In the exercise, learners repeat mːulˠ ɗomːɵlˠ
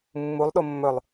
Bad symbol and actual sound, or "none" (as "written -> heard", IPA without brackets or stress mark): none